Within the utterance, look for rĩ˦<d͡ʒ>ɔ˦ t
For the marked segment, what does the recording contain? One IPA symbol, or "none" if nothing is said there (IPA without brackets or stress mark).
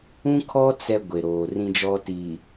d͡ʒ